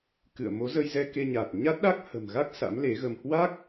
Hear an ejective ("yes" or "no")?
no